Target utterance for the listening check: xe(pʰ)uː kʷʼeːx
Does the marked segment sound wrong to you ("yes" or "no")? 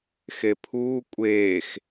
no